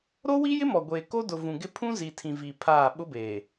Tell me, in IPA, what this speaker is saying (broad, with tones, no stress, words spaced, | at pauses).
ɾo˦wi˦jɪ˦ mɔ˨ɡʷeː˨ko˦ dʊ˨vũ˨ɡɪ˦ pʰũ˦zi˨tʰĩ˨ vi˨ pʰaː˦˨ ɓʊ˦beː˨